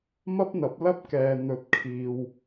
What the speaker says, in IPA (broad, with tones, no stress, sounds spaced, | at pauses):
m ɐ˥ p̚ n̪ ɐ˨˥ p̚ l ɐ˥ p̚ k ɛː˨ n̪ ɵ˨˥ t̚ kʰ iː˨ w